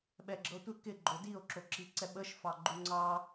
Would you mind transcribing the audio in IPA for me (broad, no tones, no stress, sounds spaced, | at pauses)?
ɓ ɛ ɡ͡ǁ ɤ tʷ ɪ k ɪ ɡ͡ǃ o d i o̯ ǁ o ǁ i ǀ ɛ ɓ ə ʃ f ɑ ɡ͡ǃ u ŋ͡ǀ ɑ